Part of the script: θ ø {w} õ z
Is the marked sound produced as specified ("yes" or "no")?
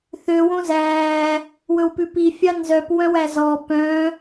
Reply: yes